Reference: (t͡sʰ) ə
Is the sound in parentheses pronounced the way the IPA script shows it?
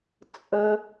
no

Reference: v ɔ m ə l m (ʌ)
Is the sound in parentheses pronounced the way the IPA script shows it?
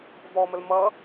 yes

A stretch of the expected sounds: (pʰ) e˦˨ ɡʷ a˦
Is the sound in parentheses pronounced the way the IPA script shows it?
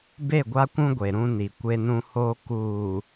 no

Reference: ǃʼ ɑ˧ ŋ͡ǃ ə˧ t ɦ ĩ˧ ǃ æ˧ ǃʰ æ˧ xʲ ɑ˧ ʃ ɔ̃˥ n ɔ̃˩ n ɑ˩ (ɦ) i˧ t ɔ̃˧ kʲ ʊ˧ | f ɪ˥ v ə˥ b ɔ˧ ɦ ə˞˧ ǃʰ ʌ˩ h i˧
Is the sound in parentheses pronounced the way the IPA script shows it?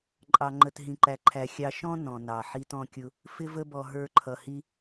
no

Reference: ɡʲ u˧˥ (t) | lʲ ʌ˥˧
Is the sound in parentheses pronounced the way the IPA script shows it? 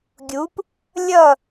no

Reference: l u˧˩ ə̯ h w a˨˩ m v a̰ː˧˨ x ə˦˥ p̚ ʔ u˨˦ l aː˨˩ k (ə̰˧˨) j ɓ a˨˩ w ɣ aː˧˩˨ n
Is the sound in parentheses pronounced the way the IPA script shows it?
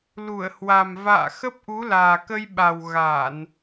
no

